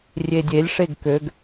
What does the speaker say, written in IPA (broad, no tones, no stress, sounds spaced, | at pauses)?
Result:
rʲ e dʲ e lʲ ʂ e ɡ k ø ɡ